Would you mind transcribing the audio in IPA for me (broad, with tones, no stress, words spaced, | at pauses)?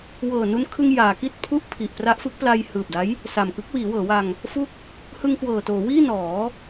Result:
wɤː˨˩nu˧nkʰɯ˧ŋ jaː˩˦ki˥˩t̚pʰu˥˩ʔ pʰi˨˩ʔpra˦˥ʔfɯ˦˥k̚pla˧j hɯː˨˩p̚da˦˥j | sa˨˩mkɯ˦˥k̚ wiː˩˦wɤː˩˦wa˧ŋ | fu˥˩k̚ | hɯ˧ŋkwɤː˨˩toː˩˦ wiː˥˩nɔː˩˦